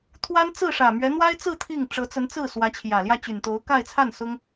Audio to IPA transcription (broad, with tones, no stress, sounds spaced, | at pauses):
t̪ʰ w a˥ n t͡s ɹ̩˥˩ ʂ ä˨˩ m ɥ ɛ˧˥ n̪ w a˥ ɪ̯ t͡s ɹ̩˥˧ t̪ʰ i˥˩ ŋ ʈ͡ʂ ɤ˧˥ t͡s ə˧˥ n t͡s ɹ̩˥˩ s w ä˧˥ t͡ɕʰ j ä˨˩ l j ä˥˩ t͡ɕ y˨˩ n t̪ o˧˥ ʊ̯ k a˥˧ ɪ̯ t͡sʰ a˥˩ n s ʊ˥ ŋ